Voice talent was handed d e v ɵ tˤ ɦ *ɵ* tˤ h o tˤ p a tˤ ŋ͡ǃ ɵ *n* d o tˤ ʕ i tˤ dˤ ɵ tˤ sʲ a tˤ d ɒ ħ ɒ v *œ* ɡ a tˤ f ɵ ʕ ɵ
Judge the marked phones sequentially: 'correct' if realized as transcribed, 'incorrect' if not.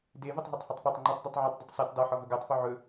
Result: incorrect: o, incorrect: tˤ, incorrect: ɵ

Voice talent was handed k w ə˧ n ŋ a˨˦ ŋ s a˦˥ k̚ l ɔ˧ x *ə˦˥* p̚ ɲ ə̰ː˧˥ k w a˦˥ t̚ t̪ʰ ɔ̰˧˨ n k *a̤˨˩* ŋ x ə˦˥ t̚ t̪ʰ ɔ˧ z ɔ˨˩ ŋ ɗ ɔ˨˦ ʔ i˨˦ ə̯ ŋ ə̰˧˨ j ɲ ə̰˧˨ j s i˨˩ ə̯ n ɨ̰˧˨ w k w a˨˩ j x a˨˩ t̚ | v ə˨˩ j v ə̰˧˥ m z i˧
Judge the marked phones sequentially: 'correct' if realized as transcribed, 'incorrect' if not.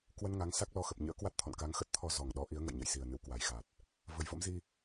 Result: incorrect: ə˨˩, incorrect: a˨˦

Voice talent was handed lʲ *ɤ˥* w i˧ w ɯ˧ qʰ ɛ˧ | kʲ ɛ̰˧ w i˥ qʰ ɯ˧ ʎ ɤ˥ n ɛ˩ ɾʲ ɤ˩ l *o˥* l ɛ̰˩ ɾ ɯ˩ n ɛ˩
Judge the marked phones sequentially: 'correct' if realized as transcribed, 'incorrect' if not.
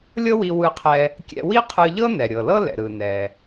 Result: correct, incorrect: ɤ˥

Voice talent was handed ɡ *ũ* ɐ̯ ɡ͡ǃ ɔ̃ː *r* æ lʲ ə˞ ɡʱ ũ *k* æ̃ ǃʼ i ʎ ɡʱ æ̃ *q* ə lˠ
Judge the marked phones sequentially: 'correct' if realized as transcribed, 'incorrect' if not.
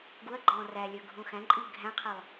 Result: incorrect: u, correct, incorrect: x, incorrect: qʰ

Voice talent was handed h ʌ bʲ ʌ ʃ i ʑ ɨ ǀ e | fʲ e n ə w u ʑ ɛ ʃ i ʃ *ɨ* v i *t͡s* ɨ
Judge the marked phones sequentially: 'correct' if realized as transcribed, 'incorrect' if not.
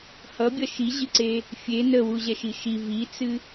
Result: incorrect: i, correct

